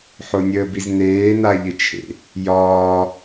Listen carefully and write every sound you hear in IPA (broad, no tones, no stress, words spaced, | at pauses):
ħonʲəːbizneː naʎɪt͡ʃʰḛ | jɒː